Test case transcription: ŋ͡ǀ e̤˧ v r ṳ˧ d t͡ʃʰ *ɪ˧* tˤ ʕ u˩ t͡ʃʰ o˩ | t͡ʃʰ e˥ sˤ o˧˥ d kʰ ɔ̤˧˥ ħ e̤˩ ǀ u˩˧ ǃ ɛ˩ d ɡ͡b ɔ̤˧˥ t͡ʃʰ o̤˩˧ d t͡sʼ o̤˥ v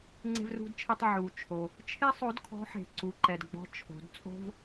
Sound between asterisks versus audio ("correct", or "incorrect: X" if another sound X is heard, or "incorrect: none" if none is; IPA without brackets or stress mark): incorrect: ɛ˧